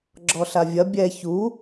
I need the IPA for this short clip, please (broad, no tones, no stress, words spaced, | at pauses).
ɡ͡ǁɔɬavʲɐ bʲɛ çu